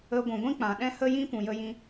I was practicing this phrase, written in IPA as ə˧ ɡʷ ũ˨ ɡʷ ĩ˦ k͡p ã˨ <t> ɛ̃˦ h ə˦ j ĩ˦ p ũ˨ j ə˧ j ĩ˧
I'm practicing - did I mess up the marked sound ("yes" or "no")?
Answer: yes